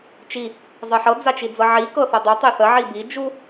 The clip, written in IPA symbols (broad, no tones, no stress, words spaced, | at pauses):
t͡ʃi | zˤɤħɤ d͡zat͡ʃid͡zɤʕi kɤθɤdˤu tˤeθə ʕibi d͡ʒu